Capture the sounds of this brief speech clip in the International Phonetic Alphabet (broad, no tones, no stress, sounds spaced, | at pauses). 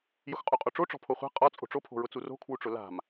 j ʊ x qʼ u qʼ o ʈ͡ʂ o ʈ͡ʂ ɔ̤ pʰ o χʷ a̤ qʼ ɔ t͡sʼ o̤ ʈ͡ʂ o pʰ o̤ ɹ ʊ t͡s u r o̤ kʰ w u ʈ͡ʂ ʊ l a̤ m